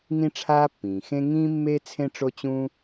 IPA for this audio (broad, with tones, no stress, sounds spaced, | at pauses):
ŋ ĩ˦ ʈ͡ʂʰ aː˦ pː ĩː˩ x ẽ˦ ŋ ĩː˦ mː e˦ t͡sʰ ẽ˦ ʈ͡ʂ o˦ t͡ɕ ũ˦